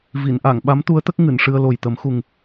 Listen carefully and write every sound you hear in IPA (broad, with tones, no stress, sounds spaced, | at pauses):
v i˨˩˨ n ʔ a˨˩˨ ŋ ɓ a˧˥ m t̪ u˧˥ ə̯ t̪ ə˦˥ k̚ ŋ ɨ˨˩˨ n ʂ ɨ˧ ə̯ l o˨˩ j t̪ ə˨˩˦ m x u˨˩ ŋ